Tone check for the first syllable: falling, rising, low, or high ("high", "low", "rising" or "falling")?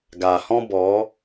low